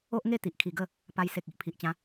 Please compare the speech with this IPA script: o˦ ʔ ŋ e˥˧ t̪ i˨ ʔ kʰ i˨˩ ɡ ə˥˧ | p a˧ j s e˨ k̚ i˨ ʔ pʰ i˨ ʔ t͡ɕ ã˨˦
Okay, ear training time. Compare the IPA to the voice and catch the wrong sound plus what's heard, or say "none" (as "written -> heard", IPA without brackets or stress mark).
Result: none